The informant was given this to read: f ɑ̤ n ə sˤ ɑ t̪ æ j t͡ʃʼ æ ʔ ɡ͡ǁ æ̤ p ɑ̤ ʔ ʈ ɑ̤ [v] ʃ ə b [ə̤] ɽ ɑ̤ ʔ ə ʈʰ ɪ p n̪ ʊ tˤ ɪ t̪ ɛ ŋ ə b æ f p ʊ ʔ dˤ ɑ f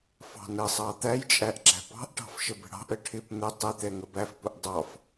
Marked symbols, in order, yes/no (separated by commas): no, yes